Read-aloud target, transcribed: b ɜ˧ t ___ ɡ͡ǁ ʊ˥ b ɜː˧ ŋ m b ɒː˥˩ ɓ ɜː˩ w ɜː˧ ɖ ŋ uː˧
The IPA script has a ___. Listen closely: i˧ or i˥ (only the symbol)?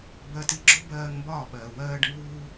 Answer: i˧